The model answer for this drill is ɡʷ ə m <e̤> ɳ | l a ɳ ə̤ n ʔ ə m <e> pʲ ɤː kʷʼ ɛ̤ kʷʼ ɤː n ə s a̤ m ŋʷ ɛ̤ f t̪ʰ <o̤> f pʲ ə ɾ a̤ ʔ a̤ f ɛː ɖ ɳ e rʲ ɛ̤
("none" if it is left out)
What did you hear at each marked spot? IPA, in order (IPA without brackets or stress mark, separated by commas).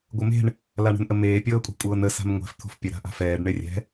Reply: e̤, eː, o̤